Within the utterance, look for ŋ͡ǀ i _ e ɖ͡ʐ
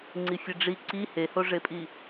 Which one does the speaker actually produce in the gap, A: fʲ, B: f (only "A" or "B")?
A